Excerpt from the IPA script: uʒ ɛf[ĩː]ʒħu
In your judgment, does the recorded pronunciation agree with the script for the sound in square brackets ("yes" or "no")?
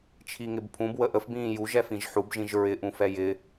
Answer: no